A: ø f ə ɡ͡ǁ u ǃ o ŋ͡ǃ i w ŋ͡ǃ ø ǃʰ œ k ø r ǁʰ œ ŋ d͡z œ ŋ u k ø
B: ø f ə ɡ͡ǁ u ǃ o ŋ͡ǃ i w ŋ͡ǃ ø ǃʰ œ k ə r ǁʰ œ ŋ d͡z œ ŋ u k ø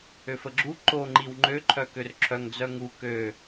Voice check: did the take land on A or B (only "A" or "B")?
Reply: A